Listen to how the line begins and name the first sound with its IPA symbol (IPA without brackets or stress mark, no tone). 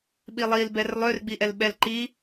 ɓ